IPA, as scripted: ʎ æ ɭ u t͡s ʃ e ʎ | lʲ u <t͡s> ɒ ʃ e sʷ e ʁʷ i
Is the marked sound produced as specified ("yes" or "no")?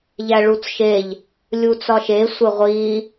yes